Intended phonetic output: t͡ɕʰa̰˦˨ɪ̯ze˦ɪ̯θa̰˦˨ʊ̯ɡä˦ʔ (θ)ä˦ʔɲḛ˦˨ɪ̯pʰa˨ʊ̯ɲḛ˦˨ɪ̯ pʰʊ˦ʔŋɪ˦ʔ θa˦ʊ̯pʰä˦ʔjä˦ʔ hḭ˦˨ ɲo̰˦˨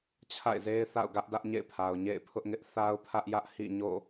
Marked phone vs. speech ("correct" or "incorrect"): incorrect